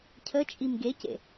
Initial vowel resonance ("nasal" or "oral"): oral